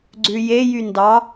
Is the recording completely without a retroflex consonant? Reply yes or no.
yes